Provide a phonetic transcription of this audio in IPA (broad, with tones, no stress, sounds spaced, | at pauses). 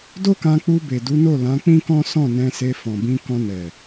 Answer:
d o˦ k ã˧ k͡p u˧ b e˨ d u˨˦ n o˦˨ l ã˨˦ k͡p ĩ˦ k ɔ̃˦ s ɔ̃˦˨ n ɛ̃˧ s e˧ f ɔ̃˨ b ĩ˧ k ɔ̃˧ n ɛ˨